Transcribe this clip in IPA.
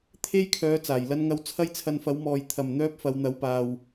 t̪ʰ e˥ j kʰ œː˨˥ t͡s aː˨˩ j l ɐ˥ n ŋ ɐ˥ w t͡sʰ ɐ˥ j t͡sʰ ɐ˧ n f ɐ˨˥ w m ɔː˨ j t̪ʰ ɐ˨˩ m n̪ œː˥ p̚ f ɐ˨˧ w n̪ ɐ˨˥ w p aː˨ w

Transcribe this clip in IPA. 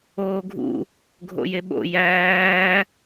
oː ɡʱ ṵ | ɡʱ o̰ j e ɓ o̰ j æː

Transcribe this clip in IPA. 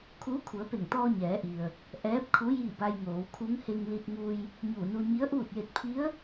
kʰ uː˧˥ kʰ u˩˧ ə̯ p e˧˩ ŋ t̪ ɔː˧ ɲ ɛː˩˧ ʔ i˩ ə̯ | ʔ ɛː˧˥ p̚ kʰ u˧˥ j i˥˨ b a˧ j ŋ oː˩˧ w kʰ u˧˥ ŋ h e˧ ŋ l i˧ t̚ ŋ u˧ j | ɲ uː˧˩ n u˧ ɲ i˧˥ ə̯ ʔ uː˥˨ t̚ j e˧ t̚ pʰ i˧˥ ə̯

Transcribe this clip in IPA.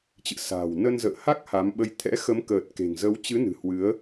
t͡ɕ ɨ̰˧˨ s a̤ː˨˩ w n ə˧ n z ə̰ː˧˨ h a˦˥ k̚ h a˨˦ m ɓ ə˧ j t̪ʰ ɛ̰˧˥ x ə˨˦ m k əː˨˩ t̚ k e̤˨˩ ŋ z ə˨˦ w t͡ɕ ɨ˨˦ n ɨ̤˨˩ h w ɨ˨˦ ə̯

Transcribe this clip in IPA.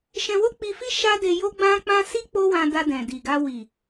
ʃ ɛ̃˧ w o˦ k͡p i˧ f i˦ ʃ a˦ d e˧ j o˦ ɡ͡b ã˦ k͡p ã˦ s i˦ k͡p o˦ w ã˧ d a˧ d ɛ̃˨ d i˨ ɡ a˧ w i˨

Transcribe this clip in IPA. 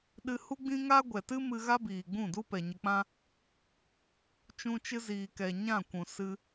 ɗ ɨ˧ h u˦ ɡ͡b ĩ˦ ŋ a˦ ɡʷ ɛ˨ t ɨ˦ m ɨ˧ ɣ a˦ b iː˨ ɡ͡b ũ˦˨ d u˦ p ɛ˨ ɲ ə˧ k͡p ã˦ | t͡ʃ ũ˧ t͡ʃ ɨ˧ z iː˨ k ɛ˨ ɲ ã˦˨ kʷ ũ˨ s ɨ˧

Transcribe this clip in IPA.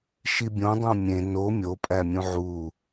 ʃ i bʲ õ dˤ õ mʲ ẽ n o mʲ o pʼ æ mʲ ũ ʕ u

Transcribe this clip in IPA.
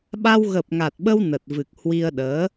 ɓ a˧ w ɣ ə˨˩ p̚ ŋ a˨˩ t̚ ɓ ə˧ w n ə˨˩ t̚ v ɨ˨˩ k̚ h w i˧ ə̯ ɗ əː˨˦

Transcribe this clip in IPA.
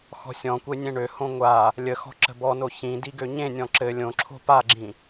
x ɔ̤ sʲ ɔ̃ kʷ e nʲ ẽ ɳ ø h õ ŋʷ a | lʲ ə x ɔ̤ ǁ ə̤ b ɔ n o ç ĩ d i ɡ ø ɲ ẽ nʲ ɔ̃ ǁ ɘ lʲ õ ǁʰ o̤ p a ɡ͡ǁ ĩ

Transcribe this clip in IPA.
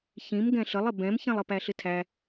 ç ĩ m ɡ ɛ̃ ɬ ə lˠ ɪ b ɛ̃ m ç ĩ lˠ ə p æ ɬ ɪ tʰ æ

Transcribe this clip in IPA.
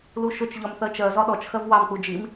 l u ʃ ʊ t͡ʃ ʎ ɒ m θ ɜ t͡ʃ ɜ z ɒ ɗ ɔ t͡ʃ x ɜ v w ɑ m k͡p u d͡ʒ i m

